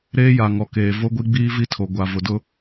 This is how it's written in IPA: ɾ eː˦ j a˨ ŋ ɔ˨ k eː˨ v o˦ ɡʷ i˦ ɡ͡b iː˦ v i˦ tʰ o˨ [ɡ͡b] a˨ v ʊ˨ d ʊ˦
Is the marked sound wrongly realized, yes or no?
yes